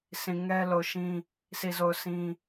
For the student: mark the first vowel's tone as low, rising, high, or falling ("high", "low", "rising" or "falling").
low